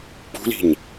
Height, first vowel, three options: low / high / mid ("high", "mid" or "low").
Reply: high